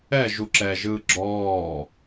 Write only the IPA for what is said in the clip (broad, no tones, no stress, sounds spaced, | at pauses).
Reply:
ɛ ʒ u ǁ ɛ ʒ ɯː ɡ͡ǁ ɔː